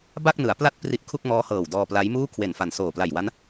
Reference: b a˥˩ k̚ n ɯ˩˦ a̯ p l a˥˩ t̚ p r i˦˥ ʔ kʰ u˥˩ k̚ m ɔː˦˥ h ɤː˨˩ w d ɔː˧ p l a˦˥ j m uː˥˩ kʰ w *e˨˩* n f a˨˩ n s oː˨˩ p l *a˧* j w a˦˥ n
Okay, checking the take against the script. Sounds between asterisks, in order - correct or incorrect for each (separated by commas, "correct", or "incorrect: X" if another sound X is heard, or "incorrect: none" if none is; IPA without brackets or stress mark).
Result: correct, incorrect: a˨˩